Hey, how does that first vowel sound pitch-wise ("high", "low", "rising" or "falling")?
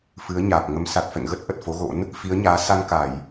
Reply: rising